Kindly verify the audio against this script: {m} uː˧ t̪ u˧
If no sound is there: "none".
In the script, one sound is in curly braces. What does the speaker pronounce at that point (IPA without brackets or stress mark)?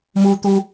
m